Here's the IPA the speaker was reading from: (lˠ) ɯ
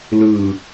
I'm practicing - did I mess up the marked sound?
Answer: yes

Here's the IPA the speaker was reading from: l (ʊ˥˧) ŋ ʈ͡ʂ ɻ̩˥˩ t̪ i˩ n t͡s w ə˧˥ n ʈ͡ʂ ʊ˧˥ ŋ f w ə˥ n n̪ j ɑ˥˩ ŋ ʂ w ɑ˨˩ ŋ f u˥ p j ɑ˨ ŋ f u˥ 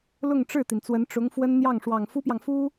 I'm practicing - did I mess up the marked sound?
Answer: no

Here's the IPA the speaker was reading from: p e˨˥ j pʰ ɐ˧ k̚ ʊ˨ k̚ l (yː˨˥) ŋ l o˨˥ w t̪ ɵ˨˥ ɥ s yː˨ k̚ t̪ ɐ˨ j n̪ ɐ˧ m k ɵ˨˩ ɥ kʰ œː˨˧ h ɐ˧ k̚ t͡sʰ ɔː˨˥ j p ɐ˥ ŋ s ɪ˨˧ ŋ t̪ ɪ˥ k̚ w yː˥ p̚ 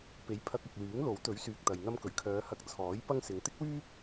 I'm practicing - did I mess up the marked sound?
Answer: no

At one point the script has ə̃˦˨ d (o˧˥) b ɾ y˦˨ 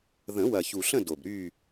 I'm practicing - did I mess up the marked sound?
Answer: yes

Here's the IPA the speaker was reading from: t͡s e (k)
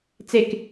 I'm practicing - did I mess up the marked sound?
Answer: no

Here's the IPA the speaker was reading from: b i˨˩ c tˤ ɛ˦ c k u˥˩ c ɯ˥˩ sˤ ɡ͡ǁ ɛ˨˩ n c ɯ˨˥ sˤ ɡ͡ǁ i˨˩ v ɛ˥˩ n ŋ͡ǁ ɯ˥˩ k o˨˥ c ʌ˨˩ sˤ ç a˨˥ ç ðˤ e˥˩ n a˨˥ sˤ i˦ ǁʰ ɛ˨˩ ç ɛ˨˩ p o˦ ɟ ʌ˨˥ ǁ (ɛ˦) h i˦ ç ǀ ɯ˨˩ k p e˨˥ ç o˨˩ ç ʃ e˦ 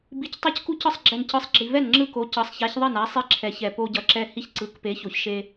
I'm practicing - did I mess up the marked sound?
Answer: no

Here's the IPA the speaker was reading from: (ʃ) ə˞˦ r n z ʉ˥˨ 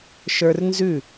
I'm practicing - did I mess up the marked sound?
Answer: no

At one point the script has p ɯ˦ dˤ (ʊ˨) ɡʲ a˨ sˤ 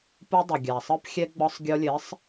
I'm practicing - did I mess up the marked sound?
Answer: yes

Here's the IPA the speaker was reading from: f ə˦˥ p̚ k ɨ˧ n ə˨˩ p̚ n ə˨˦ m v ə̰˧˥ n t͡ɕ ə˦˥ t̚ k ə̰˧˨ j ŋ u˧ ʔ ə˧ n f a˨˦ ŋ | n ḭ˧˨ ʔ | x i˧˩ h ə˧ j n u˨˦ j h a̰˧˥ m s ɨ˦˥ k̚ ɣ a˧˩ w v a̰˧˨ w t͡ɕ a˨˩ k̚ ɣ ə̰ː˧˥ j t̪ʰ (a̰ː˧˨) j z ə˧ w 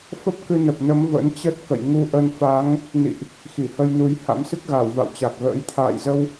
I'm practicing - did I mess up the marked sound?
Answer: no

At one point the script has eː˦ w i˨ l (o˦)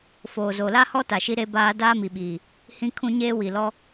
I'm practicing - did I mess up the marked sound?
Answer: yes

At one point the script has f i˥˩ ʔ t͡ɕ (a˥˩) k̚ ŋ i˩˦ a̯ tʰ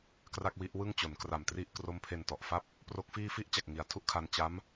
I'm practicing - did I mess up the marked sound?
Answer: yes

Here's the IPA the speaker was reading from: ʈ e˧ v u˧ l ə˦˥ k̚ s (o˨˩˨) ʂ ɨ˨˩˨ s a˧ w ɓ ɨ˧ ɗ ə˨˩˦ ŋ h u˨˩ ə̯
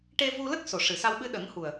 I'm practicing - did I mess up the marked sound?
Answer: no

